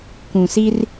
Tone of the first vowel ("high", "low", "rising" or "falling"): low